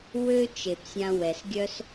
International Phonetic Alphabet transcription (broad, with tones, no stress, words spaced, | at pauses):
wø˥ t͡ʃe˩psʲã˧ wɛ˩sɡʲœ˥s